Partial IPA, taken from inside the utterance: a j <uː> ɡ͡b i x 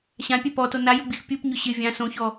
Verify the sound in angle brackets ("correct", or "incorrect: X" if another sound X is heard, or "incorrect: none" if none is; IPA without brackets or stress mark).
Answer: incorrect: u